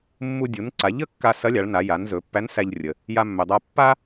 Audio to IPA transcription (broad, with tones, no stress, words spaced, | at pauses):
mːu˧ dʲu˩˧nǀa˩˧ʎə˥kːa˧ sɐ˧˥lʲa˩˧ɭna˩˧ ja˩˧nzɵ˩˧pːæ˧˥n sæ˧ʎrʲə˩ | ja˧mːɵ˩dˤa˧ pːa˥